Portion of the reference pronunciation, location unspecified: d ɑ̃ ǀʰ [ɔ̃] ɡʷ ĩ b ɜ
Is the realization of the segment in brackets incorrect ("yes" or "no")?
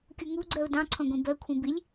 no